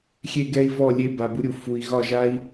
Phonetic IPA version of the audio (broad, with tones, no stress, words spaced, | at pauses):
xʲe˧ɡɛ˧i̯ vɔ˦˨lʲe˧ ba˨bu˧ɾʲu˨ fu˨i̯ ɣɒ˦˨ʒa˦i̯